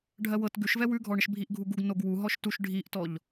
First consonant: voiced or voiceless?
voiced